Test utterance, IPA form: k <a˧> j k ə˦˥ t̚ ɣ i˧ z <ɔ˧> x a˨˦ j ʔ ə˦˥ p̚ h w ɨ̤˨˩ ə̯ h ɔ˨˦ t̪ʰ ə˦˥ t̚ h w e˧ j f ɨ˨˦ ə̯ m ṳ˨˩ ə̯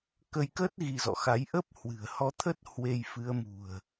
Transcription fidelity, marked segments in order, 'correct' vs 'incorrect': incorrect, incorrect

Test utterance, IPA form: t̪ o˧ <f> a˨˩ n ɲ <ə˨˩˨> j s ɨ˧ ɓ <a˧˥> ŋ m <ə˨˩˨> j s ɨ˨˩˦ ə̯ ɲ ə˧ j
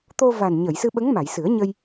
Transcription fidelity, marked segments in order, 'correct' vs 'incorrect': incorrect, correct, incorrect, incorrect

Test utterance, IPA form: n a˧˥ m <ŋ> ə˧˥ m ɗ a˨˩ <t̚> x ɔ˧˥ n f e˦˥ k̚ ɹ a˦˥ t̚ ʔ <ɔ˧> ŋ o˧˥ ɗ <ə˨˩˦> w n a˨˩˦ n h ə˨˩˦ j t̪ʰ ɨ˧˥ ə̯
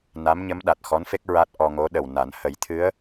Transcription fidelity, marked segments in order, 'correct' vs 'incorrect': incorrect, correct, correct, incorrect

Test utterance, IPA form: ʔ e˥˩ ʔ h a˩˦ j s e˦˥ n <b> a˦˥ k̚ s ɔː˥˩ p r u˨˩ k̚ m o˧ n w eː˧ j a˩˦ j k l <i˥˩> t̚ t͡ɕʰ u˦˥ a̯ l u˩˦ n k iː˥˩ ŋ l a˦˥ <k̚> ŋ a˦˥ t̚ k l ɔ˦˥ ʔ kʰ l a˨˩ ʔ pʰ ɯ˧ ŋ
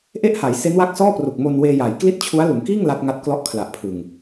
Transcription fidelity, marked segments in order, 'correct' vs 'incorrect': incorrect, correct, incorrect

